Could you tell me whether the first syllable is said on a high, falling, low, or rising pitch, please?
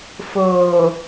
low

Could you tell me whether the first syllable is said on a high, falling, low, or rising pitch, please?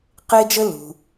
high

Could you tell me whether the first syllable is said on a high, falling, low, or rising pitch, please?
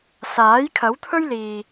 rising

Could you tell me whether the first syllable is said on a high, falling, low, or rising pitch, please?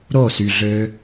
falling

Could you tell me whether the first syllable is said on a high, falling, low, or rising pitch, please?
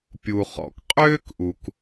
low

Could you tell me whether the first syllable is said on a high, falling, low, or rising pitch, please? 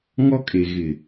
high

